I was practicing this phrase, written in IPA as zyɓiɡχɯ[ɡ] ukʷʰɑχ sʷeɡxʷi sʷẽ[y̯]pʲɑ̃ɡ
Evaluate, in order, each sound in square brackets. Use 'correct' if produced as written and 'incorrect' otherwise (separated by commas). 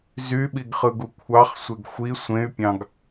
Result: correct, correct